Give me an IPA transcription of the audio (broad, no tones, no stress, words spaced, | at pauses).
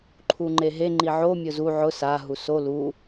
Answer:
ǃʰuŋ͡ǃeɦe ŋ͡ǃiʕo mʲʊzu ʕʊ sa ɦuso lu